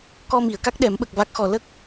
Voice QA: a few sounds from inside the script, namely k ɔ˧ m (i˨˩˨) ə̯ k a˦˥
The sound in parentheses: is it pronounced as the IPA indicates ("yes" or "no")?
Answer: yes